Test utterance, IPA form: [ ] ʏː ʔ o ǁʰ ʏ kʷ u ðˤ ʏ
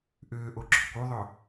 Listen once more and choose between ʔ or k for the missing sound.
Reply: ʔ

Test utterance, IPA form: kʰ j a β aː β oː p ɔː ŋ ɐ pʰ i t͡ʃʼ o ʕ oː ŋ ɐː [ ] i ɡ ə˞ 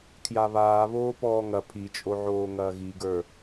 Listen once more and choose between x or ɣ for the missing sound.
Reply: ɣ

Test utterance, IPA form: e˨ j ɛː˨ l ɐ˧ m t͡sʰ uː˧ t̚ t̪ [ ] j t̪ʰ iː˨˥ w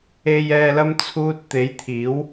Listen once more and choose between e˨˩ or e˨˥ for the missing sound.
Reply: e˨˥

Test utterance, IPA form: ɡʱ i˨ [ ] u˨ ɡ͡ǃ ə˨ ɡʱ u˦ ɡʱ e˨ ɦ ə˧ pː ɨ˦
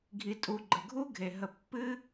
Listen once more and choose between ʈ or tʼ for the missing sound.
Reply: tʼ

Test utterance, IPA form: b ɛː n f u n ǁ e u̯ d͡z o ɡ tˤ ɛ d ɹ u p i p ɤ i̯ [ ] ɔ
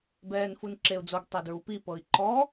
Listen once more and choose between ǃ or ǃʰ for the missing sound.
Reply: ǃ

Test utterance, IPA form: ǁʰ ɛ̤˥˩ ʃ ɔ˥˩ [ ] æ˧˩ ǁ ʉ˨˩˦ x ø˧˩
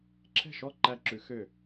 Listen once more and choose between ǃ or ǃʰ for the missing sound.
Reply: ǃ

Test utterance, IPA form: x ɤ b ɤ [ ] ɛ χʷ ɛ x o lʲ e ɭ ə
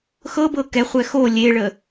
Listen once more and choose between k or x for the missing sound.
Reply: k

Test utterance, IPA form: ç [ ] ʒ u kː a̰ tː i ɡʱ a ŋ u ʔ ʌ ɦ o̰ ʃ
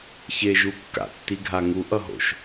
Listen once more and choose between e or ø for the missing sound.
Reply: e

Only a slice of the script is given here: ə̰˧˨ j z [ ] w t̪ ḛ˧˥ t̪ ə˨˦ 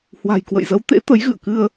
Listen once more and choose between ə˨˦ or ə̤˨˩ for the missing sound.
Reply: ə˨˦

